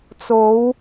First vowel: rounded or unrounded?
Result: rounded